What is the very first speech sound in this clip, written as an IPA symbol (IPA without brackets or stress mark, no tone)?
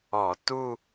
ɔ